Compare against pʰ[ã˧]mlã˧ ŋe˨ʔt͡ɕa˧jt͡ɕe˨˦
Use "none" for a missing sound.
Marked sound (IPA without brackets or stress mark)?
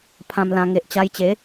ã˧